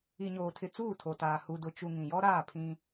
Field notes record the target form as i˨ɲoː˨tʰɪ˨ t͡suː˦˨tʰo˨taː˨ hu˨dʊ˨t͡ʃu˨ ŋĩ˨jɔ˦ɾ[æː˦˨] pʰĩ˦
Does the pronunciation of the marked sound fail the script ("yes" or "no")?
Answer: yes